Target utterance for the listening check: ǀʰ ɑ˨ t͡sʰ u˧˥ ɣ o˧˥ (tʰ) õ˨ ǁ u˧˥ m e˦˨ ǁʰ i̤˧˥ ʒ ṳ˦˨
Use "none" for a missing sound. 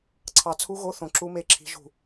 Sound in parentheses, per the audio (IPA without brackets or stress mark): θ